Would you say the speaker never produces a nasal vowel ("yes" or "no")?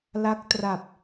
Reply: yes